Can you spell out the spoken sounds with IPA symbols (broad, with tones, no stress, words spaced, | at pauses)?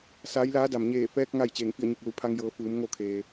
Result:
saː˧˥jlaː˧˥da˩m ɲeː˧˩fɛː˧k̚ ŋa˥˨j t͡ɕeː˧˩ŋfi˥˨ə̯ɲu˧˩k̚ lu˩˧pʰa˧ŋjɤː˩˧ fɯː˩˧mŋo˥˨kʰeː˩